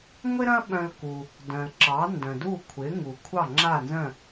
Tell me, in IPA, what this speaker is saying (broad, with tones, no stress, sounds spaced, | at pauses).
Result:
ŋʷ ɪ˥ ɾ ɐ̃˥ ɓ œ̃˧ l k u˩ | d œ̃˩ l ǁ ɑ˩˥ n d œ̃˩ d u˥˩ kʷʰ ɪ˩˥ ŋ u˩ kʷʰ ɑ˥˩ ŋ͡ǁ a˥˩ n z œ̃˥˩